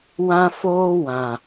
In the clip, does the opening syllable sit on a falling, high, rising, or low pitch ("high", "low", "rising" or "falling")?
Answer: high